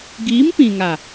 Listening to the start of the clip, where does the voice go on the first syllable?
rising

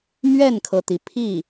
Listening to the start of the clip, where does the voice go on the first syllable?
falling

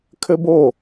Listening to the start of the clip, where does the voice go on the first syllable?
high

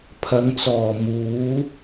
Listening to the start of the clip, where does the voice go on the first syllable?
low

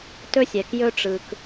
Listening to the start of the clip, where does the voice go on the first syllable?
high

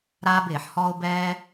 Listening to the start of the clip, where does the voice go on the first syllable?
high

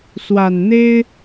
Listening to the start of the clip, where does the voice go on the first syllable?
low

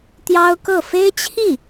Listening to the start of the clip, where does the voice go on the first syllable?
high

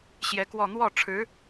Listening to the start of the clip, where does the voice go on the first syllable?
rising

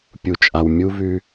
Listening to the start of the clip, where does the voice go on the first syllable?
low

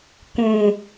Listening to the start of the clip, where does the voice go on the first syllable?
low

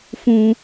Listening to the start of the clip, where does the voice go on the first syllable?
high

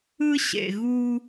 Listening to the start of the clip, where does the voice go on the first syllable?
high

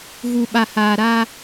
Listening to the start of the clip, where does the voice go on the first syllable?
low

